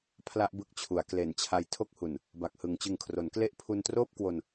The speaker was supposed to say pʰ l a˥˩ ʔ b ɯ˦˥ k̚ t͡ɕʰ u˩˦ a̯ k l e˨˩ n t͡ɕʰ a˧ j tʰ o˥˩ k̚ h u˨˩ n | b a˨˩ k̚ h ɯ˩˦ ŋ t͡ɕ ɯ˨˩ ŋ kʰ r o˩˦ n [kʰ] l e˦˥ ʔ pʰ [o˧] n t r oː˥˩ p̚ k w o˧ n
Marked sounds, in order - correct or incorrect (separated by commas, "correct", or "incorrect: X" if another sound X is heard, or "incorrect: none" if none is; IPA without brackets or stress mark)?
incorrect: k, incorrect: u˧